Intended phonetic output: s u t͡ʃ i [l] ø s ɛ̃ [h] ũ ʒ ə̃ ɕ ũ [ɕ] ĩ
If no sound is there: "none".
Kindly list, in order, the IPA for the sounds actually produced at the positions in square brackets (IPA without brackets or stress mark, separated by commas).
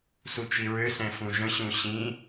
ɹ, f, ɕ